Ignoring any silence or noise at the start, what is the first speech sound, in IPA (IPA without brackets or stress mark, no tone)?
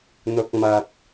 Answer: n̪